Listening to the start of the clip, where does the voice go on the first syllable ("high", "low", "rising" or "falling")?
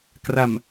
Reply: low